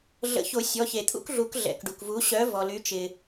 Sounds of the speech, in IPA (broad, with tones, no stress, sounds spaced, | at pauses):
ɮ ə̰˨˩˦ ç o˨˩˦ sʲ ɔ˩˧˩ ç e˩ t̪ʰ ṵ˥ k ɮ u˨˩˦ k ɮ ɛ̰˩˧˩ k ɖ u˩ k v u˨˥ ɕ œ˨˥ v ɔ˩ l y˨˥ t͡ʃ ɪ˩